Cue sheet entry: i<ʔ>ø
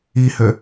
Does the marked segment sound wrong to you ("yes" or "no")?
yes